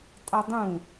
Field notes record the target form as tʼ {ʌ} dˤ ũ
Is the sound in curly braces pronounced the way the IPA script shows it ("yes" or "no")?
yes